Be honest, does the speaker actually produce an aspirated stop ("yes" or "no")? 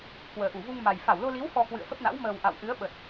no